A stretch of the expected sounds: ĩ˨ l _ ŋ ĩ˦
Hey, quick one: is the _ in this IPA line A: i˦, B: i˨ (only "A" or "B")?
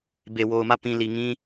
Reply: B